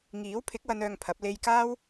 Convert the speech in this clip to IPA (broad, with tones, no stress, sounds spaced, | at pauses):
ŋ iː˨˥ w pʰ ɪ˨˥ k̚ w ɐ˨˧ n œː˧ ŋ pʰ ɐ˨˥ p̚ l e˧ j k aː˥ w